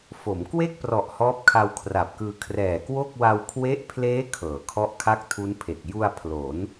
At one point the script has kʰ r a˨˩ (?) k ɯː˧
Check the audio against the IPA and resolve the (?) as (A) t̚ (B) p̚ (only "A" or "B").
B